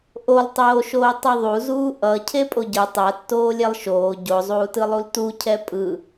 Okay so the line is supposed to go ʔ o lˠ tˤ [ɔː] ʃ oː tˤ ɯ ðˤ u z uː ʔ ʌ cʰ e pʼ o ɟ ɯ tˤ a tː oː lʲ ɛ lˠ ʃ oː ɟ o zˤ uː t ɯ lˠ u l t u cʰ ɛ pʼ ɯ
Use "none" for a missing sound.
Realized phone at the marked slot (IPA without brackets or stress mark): oː